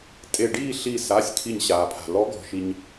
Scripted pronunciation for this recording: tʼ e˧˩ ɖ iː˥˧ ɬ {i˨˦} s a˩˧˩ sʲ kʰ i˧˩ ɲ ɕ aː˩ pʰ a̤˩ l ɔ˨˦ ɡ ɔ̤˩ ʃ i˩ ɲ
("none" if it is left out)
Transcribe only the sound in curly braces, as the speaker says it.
i˧˩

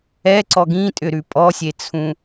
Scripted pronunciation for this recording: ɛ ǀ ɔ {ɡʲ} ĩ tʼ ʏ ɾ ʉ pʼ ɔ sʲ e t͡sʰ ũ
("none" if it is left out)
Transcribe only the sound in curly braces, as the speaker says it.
ɡ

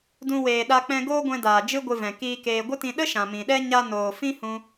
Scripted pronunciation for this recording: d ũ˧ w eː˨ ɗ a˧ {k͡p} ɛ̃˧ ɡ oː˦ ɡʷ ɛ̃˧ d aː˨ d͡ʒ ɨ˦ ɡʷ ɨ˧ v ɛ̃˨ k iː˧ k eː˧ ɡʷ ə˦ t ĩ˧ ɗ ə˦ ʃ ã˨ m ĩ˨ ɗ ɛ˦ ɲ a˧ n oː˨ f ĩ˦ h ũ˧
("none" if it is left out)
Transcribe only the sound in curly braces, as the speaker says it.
k͡p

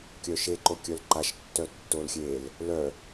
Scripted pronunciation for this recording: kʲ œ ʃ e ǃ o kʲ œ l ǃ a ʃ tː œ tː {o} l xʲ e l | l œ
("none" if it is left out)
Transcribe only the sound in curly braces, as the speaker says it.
o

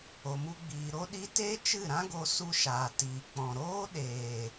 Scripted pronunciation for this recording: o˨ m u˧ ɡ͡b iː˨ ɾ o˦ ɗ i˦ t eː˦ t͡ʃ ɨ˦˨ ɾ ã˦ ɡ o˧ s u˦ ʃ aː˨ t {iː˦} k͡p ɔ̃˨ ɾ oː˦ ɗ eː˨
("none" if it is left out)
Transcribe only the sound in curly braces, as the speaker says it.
iː˨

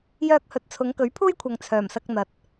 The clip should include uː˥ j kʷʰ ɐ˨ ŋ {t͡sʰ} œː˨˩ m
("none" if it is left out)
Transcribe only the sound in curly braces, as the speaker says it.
t͡sʰ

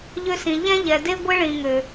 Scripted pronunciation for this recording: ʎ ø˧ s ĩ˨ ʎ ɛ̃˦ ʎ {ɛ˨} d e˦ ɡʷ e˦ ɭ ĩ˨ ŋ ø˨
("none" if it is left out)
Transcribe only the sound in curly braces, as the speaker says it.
ɛ˨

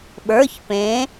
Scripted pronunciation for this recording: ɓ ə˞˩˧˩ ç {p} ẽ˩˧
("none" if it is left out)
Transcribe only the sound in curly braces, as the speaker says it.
p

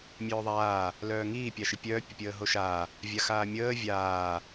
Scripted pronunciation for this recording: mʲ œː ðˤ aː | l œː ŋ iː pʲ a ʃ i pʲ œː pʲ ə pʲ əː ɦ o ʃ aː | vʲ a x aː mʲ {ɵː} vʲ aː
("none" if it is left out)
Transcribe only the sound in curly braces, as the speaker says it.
əː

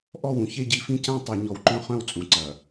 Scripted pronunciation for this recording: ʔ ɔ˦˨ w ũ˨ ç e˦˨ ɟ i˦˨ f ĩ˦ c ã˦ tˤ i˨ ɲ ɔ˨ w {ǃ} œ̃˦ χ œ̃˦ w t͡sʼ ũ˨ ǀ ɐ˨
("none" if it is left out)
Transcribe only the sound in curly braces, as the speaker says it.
ǃ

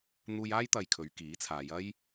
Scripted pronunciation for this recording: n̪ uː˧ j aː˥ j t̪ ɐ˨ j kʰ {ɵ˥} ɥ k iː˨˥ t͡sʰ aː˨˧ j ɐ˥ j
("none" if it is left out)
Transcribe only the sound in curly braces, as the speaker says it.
ɵ˨˧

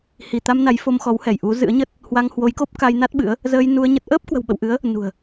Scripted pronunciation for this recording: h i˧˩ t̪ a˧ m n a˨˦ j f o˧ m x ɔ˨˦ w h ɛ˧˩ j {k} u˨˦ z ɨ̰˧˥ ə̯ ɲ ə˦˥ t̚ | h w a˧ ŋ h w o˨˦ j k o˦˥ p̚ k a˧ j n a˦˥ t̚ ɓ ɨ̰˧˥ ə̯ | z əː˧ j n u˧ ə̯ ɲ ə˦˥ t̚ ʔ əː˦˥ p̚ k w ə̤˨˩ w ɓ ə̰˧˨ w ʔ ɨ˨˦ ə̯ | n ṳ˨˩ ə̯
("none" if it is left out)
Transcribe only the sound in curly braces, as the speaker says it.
ʔ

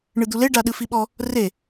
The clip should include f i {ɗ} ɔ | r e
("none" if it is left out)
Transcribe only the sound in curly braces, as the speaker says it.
ɓ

